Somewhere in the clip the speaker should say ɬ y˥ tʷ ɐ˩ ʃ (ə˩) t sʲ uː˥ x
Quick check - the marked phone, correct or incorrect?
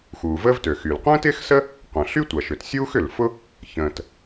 incorrect